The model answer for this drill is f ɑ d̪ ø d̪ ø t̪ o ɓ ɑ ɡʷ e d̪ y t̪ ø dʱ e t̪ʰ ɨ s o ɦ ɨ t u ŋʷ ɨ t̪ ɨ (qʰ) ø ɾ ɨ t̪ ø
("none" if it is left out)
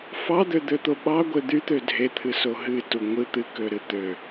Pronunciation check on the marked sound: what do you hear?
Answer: k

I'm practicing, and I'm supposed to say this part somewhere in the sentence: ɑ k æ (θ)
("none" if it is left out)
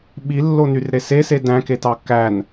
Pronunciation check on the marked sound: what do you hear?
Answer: n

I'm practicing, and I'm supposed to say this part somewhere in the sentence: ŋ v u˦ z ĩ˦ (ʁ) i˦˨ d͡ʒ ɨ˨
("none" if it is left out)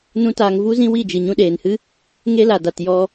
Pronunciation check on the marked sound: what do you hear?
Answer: w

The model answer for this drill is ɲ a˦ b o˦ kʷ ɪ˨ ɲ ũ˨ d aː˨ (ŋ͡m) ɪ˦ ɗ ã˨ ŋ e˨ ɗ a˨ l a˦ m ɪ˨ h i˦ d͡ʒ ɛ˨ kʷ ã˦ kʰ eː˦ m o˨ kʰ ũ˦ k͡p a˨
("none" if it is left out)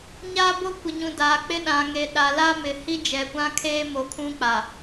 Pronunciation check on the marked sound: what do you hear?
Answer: k͡p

